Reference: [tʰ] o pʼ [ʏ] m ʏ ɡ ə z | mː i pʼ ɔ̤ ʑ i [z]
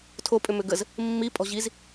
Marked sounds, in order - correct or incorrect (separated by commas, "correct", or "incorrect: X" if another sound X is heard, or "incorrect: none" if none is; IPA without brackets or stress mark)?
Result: correct, correct, correct